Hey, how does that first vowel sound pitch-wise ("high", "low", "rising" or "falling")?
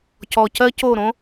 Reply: low